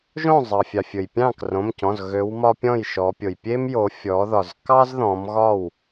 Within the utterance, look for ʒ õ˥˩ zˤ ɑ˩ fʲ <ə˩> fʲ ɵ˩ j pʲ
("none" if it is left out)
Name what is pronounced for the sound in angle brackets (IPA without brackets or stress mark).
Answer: ɑ˩